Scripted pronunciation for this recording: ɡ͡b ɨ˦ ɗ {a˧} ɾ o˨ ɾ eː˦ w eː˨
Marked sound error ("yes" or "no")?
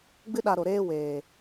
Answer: no